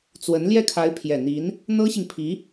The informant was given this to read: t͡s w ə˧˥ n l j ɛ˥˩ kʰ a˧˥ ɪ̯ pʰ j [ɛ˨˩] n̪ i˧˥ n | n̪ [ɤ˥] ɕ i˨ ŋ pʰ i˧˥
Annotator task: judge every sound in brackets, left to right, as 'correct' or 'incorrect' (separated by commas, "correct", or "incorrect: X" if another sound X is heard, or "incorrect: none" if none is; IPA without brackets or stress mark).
correct, correct